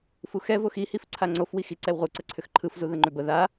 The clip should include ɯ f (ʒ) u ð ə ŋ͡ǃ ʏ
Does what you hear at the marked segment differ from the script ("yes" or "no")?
yes